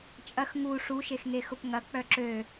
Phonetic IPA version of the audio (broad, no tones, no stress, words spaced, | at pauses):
t͡ʃʼɐx ŋu ʂuʃexŋexʊp ŋɐk͡pœ ǁø